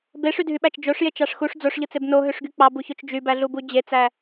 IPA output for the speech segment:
beʂydʱyɓæt͡ʃ d͡ʒoʂjet͡ʃɑʂ xuʂ d͡zoʂʎɯt͡seb noɦøʂɡy k͡pɑbuçot͡ʃ d͡ʒybæɮubu d͡ʑet͡sæ

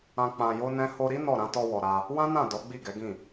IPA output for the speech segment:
ã˧ k͡pã˧jo˦nɛ̃˦ ho˧ɾi˦ nɔ˦˨ɾã˨˦ tɔ˧wɔ˨ ɾa˧ | wã˦nã˦˨ dɔ˨˦ ɡ͡bi˦˨ɡɛ˨˦ɡĩ˦˨

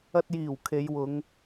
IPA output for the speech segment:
ɐ˧t̚jiː˨˩w kʰe˨˧jwʊ˨˧ŋ

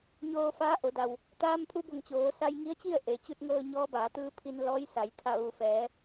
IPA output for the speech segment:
ɲoː˧faː˧˥ ʔo˩˧da˩w | t̪aː˧mpʰu˧bo˧˩ŋ t͡ɕoː˩˧ sa˧jŋi˧˥ə̯t͡ɕi˥˨ə̯ ʔe˩t͡ɕu˧t̚ŋɤː˧ ɲɔː˧˥baː˩˧t̪ɯː˧pʰi˧n lɔː˧˥jsa˩˧j t̪ʰa˧˩ʋu˩fɛː˩˧

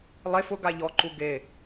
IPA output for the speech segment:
lˠe fʊ ɡaʎɔǃu ɡe

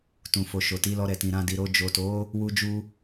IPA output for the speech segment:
tũ˨fo˨ʃo˨ ti˨˦lɔ˧ɾɛ˨tĩ˨ ɾã˧di˨ɾo˧ d͡ʒo˨to˨˦ | wu˦d͡ʒu˦

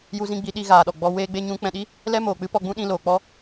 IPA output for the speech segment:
ju˧zĩ˧ɡ͡bi˨˦ ɗi˧ ɣaː˨ɗɔ˨ɡ͡bɔ˧ weː˦ɡ͡be˦ɲũ˦ k͡pɛ̃˧ɗi˦ | lɛ˦ moː˨k͡pɨ˦pɔ˧ ɡ͡bũ˦ɗĩ˧loː˨k͡pɔ˦

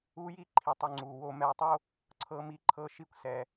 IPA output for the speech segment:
uː˦ji˦ ǃʰi˨tˤu˨ŋ͡ǀuː˩ wo˨ mɛ˨wtˤo˦ | ǀʰɤː˦mi˦ǃʰɤː˦ ʃi˦kʷsɛ˩

